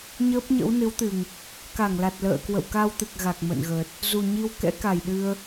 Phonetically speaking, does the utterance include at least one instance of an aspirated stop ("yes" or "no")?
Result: no